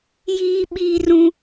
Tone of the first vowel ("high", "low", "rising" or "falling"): high